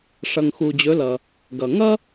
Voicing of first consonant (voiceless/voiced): voiceless